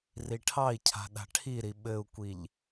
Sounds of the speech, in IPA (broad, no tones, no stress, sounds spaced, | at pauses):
r i ʈʰ ɑ i̯ cʰ a̤ ɗ a̤ ʈʰ i ɾ i ɓ ɘ u̯ kʷ i ʎ